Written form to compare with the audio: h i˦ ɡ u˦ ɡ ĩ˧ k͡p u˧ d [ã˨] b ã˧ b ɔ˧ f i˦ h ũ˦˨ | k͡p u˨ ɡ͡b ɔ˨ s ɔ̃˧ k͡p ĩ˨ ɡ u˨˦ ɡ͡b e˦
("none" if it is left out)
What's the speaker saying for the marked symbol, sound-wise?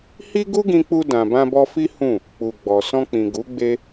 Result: ã˨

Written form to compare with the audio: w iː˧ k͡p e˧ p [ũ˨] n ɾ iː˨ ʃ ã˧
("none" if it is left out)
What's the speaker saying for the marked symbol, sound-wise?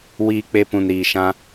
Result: ũ˨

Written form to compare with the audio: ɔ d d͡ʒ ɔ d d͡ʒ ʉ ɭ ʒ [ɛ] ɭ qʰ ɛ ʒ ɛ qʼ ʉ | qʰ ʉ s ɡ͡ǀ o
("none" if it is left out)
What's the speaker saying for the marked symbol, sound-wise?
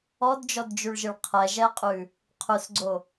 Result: ɨ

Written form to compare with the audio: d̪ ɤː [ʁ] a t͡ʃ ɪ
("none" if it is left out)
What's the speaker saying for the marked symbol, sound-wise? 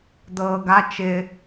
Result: ɡ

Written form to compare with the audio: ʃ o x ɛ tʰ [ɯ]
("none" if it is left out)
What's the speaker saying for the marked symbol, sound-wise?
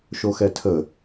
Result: ə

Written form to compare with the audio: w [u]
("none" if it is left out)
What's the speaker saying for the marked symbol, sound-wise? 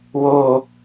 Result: o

